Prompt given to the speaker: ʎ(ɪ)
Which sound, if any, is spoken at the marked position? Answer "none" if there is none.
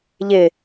ɪ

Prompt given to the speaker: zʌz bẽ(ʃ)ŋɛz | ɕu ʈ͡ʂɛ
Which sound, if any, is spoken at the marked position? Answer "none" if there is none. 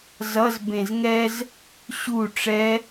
z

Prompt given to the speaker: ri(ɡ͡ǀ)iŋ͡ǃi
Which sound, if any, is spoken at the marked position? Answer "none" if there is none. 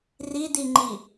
d̪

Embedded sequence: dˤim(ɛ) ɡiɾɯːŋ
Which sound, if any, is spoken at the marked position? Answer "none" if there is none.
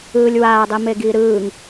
e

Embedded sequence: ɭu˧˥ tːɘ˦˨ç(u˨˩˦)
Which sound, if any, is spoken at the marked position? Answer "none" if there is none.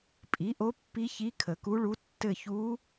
u˧˥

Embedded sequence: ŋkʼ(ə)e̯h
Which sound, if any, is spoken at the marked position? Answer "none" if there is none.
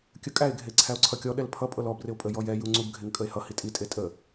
ə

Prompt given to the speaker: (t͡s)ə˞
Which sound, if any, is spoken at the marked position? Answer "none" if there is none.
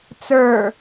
t͡s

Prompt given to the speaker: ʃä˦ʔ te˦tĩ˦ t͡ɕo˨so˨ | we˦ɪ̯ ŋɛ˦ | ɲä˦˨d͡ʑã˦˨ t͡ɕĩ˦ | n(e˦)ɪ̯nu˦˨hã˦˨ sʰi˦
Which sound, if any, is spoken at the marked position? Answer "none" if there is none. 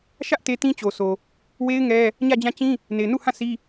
e˨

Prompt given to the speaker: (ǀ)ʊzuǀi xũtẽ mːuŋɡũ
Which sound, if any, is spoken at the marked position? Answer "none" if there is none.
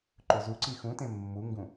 ǃ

